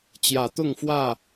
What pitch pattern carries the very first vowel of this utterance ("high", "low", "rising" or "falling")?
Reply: low